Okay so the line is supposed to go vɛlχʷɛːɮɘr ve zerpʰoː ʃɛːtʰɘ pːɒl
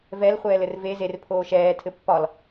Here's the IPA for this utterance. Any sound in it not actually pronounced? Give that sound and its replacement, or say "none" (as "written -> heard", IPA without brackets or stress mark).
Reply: ɮ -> l